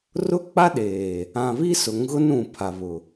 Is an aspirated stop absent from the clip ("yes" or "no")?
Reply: no